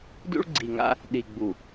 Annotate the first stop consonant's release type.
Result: plain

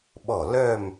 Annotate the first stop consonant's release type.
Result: implosive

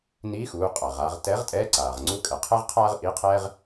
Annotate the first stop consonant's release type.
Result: ejective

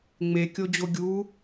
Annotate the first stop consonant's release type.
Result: plain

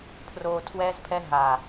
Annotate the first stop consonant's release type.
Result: aspirated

